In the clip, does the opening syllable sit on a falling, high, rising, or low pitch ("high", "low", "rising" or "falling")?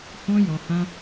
high